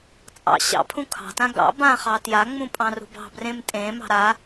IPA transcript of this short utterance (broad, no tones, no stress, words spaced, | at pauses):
t͡sʼɑ̰ ɕɑ̰pʰũ kʰɑ̤tã ɡɑ̰ bãχɑ tjaŋ͡mũ pʼɑ̃rṳbɑ̤ brẽmtʼẽ mɑ̤ɾa